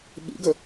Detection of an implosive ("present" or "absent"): present